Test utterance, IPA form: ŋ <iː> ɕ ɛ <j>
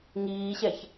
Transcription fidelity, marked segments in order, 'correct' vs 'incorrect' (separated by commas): correct, incorrect